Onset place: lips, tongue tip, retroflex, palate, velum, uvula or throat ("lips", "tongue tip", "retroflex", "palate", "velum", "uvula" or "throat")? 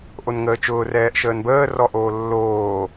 throat